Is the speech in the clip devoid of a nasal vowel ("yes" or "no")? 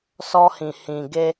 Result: no